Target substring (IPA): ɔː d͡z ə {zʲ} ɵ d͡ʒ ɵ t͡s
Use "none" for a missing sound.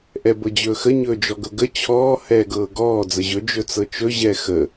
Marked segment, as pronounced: ʑ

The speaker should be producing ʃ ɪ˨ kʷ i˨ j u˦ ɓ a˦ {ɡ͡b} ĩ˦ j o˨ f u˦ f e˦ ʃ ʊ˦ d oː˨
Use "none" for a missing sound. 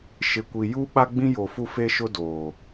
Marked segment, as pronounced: ɡ͡b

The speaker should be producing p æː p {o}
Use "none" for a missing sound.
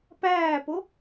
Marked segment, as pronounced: o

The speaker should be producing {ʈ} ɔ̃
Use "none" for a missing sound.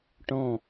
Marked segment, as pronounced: ʈ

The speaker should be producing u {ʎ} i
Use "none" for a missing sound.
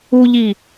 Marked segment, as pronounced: ʎ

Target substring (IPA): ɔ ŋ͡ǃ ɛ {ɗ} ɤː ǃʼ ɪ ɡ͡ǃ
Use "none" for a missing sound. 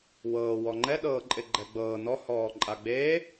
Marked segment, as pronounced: ɗ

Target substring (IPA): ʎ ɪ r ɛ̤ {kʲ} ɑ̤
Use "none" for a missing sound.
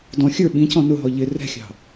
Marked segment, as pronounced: xʲ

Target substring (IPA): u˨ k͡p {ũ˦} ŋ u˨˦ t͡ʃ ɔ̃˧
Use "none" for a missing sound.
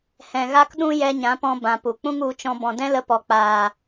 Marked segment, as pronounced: ũ˦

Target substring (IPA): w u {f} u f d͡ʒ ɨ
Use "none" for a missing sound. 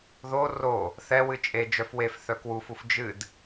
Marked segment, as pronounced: f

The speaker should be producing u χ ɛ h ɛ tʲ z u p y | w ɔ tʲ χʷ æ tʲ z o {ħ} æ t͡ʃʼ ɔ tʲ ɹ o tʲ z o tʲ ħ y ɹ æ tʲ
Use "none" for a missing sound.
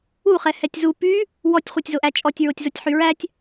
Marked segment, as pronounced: ʔ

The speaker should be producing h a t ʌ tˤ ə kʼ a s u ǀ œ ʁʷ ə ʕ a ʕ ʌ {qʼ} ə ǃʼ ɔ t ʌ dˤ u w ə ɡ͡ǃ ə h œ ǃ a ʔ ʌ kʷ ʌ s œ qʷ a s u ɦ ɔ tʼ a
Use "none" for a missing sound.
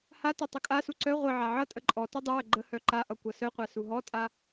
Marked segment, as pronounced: tʼ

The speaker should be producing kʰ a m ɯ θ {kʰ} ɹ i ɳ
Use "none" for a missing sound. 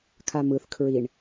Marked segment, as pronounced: kʰ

